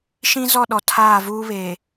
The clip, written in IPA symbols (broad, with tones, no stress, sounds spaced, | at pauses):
ʃ ĩ˦ z ɔ˦˨ ɗ ɔ˨ tʰ aː˦˨ v uː˦ β e˨